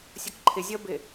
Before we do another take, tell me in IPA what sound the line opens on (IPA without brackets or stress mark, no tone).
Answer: sʲ